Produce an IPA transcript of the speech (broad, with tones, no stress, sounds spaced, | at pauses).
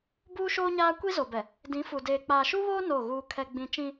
b uː˦ ʃ oː˦ ɲ aː˦ kʷ i˦ z o˨ b ɛ˨ | d ĩ˨˦ f u˨ d eː˨ k͡p aː˨ ʃ u˦ β oː˦ n o˦˨ ɣ uː˦ kʰ ɛ˦ ɡ͡b ĩ˦ t͡ʃ ĩ˦